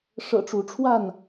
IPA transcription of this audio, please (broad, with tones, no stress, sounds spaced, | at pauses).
ʂ ɤ̰˨˩ ʈ͡ʂ u˨˦ ʈ͡ʂʰ w a˥˨ n